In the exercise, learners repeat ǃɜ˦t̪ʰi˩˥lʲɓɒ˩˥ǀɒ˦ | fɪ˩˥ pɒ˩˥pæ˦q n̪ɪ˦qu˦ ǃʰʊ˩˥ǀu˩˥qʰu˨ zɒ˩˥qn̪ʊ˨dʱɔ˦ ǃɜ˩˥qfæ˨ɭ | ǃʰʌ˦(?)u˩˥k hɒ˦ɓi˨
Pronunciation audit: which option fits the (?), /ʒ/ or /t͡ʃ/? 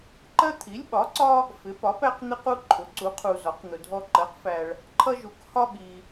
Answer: ʒ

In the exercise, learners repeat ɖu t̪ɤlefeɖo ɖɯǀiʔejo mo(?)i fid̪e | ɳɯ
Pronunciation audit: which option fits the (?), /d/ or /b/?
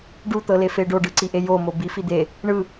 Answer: b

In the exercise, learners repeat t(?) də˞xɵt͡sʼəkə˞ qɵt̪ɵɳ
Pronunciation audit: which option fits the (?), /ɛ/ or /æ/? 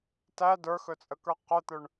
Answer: æ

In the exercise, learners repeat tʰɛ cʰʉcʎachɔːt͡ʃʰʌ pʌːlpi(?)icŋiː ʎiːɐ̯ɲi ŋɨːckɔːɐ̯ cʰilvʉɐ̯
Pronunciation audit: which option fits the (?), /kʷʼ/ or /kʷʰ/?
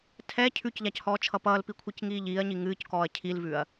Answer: kʷʰ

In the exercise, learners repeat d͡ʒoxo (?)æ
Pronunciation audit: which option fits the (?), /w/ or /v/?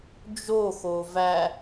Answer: v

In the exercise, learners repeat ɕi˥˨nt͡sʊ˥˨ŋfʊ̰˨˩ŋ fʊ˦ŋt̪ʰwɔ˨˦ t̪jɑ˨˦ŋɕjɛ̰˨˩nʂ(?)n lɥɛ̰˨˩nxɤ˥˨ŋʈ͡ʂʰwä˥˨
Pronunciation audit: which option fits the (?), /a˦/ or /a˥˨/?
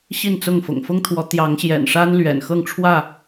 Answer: a˦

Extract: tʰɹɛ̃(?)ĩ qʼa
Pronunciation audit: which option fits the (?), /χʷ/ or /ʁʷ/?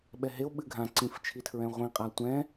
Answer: ʁʷ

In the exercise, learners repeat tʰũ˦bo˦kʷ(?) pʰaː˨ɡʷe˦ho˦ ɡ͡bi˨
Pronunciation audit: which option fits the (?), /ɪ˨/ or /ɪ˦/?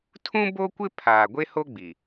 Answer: ɪ˦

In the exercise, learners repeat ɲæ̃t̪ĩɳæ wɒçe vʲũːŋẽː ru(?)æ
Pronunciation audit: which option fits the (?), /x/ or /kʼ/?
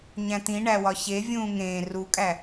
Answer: kʼ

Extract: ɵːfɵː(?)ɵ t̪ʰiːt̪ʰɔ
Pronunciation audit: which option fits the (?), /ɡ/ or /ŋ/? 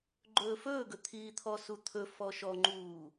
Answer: ɡ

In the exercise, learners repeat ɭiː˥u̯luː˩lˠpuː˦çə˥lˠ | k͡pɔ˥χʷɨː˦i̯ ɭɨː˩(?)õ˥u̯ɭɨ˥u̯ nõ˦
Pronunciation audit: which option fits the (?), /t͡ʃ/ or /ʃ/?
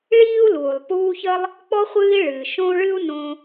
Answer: ʃ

